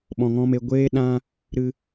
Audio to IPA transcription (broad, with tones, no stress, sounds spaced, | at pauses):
ɓ ɔ̃˨ ŋ ɔ̃˧ m e˨ ɡʷ eː˦ ɗ ã˦ | ɾ ɨ˧